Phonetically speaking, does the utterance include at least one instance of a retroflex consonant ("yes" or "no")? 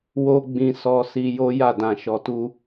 no